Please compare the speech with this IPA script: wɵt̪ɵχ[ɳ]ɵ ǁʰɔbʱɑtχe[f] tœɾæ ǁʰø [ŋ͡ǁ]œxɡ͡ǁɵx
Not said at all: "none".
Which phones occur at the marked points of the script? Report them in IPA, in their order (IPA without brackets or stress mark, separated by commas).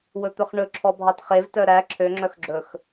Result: ɳ, v, ŋ͡ǁ